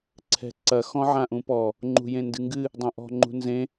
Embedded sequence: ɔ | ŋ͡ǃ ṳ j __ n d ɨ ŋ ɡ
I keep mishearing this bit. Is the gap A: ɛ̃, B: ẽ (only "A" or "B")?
B